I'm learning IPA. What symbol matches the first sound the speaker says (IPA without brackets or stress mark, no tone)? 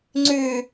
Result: ŋ͡ǀ